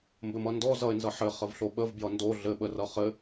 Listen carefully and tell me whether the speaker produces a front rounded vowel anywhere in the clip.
no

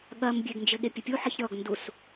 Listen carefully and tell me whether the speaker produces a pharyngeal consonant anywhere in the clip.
yes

